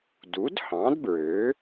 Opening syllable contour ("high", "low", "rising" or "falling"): rising